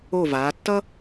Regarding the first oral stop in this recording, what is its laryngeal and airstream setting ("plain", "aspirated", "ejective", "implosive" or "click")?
plain